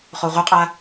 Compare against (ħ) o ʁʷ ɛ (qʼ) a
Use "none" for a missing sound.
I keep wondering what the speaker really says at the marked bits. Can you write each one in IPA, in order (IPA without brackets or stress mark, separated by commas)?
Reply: χ, qʼ